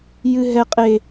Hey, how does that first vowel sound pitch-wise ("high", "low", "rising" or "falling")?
low